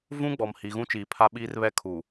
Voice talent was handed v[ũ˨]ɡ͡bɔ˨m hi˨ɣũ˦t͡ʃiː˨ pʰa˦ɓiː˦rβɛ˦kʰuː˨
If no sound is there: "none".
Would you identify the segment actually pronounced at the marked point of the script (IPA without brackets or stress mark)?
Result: ũ˦